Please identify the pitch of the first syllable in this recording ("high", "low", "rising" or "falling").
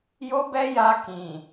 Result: high